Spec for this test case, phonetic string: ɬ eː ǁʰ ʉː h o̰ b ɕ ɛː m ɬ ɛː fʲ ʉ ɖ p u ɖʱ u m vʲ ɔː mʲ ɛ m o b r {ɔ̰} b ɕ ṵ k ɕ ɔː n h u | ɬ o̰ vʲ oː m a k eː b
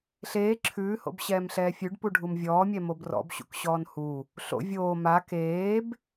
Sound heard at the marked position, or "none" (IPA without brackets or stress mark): ɔ̰